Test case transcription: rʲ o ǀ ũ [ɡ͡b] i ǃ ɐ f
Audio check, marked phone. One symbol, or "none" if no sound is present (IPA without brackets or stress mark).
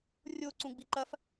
ɡ͡b